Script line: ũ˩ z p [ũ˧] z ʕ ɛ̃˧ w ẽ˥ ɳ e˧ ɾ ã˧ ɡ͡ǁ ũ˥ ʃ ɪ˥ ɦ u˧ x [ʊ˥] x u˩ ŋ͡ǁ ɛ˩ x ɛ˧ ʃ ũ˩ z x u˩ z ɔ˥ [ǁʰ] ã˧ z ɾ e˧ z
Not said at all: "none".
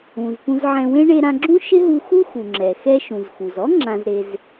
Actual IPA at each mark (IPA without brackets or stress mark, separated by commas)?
ũ˧, u˥, ŋ͡ǁ